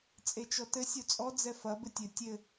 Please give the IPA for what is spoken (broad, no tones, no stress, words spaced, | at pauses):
t͡sʼet͡ʃɔtɘ sʲot͡sʼɔ d͡zɛfɐ bɘtʲɘ tʲɘ